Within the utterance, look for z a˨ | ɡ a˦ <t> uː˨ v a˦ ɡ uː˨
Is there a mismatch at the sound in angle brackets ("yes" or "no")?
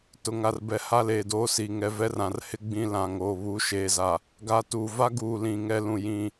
no